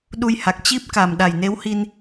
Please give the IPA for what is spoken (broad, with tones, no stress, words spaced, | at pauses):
ɗu˧jha˨˩k̚ t͡ɕi˦˥p̚ka˨˩m ɗa˨˩jne˨˦whi˧n